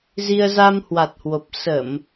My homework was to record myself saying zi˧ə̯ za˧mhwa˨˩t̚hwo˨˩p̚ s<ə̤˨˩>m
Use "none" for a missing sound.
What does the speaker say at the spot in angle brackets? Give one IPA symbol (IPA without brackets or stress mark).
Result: ə˧˩˨